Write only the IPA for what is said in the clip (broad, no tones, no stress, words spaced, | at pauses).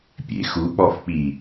pʲḛ xuk͡pɔfk͡pi